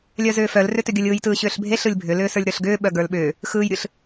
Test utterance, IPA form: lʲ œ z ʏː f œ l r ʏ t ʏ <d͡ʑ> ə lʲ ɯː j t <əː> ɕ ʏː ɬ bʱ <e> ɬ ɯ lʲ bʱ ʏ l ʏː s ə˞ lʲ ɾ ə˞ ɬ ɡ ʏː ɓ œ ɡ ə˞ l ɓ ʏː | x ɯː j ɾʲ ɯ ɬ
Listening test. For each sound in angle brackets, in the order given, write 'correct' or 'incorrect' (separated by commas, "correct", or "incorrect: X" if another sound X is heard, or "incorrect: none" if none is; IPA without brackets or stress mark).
incorrect: ɡʲ, incorrect: ɯː, correct